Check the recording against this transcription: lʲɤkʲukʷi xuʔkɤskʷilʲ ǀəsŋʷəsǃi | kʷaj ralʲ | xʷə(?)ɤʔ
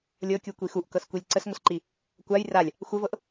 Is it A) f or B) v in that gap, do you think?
B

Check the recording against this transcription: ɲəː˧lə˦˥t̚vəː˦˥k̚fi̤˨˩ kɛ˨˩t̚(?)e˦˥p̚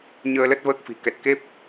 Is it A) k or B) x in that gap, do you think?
A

